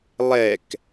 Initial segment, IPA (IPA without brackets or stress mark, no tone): lˠ